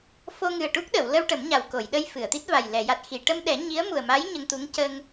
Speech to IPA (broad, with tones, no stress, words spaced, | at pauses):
fo˧ŋɨ˨˩ə̯ʈu˦˥k̚ɗə˨˩˨w lə˧w ʈə˨˩˦mɲa˨˩wko˨˩˨jɗə˧j fɨ˨˩˨ə̯t̪i˦˥t̚va˨˩j lɛ˨˩˨ja˨˩t̚xi˨˩˨ ʈə˧m ɗɛ˨˩˦ ɲi˧˥ə̯mu˨˩ə̯ma˧˥j ɲə˧ŋ t̪u˧˥ŋ cə˧ŋ